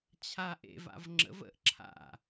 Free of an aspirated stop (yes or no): no